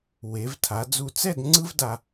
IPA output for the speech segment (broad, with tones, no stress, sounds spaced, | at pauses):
w e˩˧ v tʰ a˩˧ d͡z u˧˩ t͡s ɛ˥˧ d ŋ͡ǀ ɯ˥ v d a˧